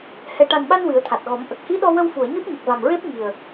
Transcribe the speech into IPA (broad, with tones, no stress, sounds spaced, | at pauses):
h ɛ˨˩ ʈ a˨˩ n ɓ a˧ n w ɨ˨˩˦ ə̯ t̪ʰ a˨˩ t̚ ɣ ɔ˨˩˦ m ʔ ə˨˩ k̚ h i˧˥ ɗ ɔ˧ w ə˧ w f u˨˩˨ ə̯ ɲ u˦˥ t̚ ɲ ə˨˩ k̚ v a˨˩ m ɹ e˦˥ p̚ ŋ i˨˩ ə̯